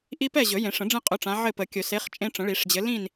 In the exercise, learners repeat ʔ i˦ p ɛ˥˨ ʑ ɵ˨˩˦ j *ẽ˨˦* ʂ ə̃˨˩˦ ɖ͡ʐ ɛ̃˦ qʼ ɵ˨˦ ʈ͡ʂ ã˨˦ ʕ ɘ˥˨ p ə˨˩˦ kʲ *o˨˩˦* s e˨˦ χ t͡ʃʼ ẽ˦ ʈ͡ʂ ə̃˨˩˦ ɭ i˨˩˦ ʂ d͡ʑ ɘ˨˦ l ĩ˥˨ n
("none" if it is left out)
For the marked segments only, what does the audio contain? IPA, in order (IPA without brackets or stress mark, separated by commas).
ẽ˨˩˦, ɵ˨˩˦